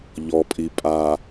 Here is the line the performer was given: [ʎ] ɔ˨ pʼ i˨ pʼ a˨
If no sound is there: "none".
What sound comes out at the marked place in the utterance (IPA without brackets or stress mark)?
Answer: ʎ